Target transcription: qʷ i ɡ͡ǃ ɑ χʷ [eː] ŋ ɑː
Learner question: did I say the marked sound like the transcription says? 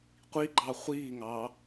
no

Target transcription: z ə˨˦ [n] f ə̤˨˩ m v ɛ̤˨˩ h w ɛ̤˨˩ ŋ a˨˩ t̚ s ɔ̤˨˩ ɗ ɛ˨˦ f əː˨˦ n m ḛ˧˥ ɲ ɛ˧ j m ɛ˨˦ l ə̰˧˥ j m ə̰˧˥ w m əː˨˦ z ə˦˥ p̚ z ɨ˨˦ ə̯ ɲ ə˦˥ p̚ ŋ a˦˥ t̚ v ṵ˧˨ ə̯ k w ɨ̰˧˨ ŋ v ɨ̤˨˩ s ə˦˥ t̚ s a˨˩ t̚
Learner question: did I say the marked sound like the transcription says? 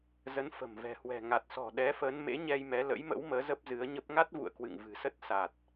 yes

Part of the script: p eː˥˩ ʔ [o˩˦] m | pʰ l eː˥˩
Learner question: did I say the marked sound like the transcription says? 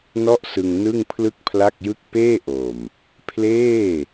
no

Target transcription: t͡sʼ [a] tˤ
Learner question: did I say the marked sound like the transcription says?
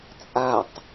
yes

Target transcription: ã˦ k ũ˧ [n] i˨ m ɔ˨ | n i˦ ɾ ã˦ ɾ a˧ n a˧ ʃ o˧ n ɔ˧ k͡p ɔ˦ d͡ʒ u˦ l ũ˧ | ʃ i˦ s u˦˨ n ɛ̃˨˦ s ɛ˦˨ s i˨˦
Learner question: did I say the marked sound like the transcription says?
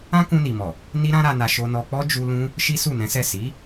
yes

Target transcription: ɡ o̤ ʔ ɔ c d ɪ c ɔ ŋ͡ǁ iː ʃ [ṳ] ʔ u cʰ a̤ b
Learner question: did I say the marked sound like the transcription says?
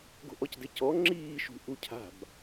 yes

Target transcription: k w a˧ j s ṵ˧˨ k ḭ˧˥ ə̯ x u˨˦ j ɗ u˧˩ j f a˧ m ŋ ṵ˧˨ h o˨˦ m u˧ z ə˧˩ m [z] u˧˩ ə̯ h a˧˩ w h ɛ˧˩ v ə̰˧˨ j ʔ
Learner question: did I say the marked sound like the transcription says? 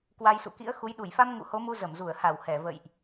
yes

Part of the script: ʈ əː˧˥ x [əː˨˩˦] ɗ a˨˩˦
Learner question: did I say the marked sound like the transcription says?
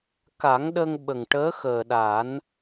no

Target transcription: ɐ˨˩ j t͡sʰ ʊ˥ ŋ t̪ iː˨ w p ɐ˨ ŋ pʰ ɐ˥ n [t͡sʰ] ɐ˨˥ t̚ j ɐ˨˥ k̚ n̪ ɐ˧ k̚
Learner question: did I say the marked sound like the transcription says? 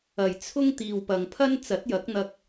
no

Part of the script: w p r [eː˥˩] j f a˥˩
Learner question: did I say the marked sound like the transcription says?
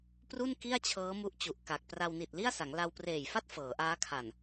no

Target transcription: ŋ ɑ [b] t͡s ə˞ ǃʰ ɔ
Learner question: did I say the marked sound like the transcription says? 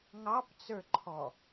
no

